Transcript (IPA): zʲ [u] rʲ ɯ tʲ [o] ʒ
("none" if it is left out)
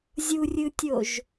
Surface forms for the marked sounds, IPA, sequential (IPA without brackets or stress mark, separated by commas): u, o